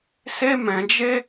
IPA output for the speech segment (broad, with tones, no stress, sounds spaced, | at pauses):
s e˦ m ɛ̃˧ d͡ʒ e˦